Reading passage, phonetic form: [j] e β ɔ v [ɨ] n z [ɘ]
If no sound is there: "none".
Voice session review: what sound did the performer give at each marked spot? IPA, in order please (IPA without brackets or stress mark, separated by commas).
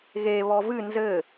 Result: ɣ, ɨ, ɘ